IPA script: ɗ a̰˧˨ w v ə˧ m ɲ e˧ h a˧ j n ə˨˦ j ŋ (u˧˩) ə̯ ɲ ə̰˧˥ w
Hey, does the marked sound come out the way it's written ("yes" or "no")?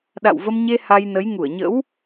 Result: yes